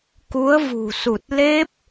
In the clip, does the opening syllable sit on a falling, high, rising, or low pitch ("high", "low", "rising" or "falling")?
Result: rising